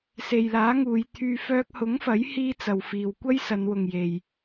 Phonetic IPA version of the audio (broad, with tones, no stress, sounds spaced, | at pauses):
s e˨ j l aː˨˥ ŋ uː˨˧ j t̪ʰ yː˧ f œː˧ k̚ h ʊ˨˥ ŋ f ɐ˨˥ j h iː˧ t͡s ɐ˨ w f iː˨ w kʷ ɐ˥ j s ɐ˨˧ n w ʊ˨ ŋ j e˨ j